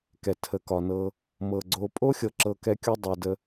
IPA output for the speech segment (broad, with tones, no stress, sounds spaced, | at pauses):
k ɛ˨ tʰ ə˨ k ɒ˨ n ɤ˧ | m ɤ˨ ɡ͡ǀ o˧ pʼ o˦ xʲ ɤ˨ ǁ ɤ˧ k ɛ˦ kʲ u˦ dˤ ɤ˨ d ə˧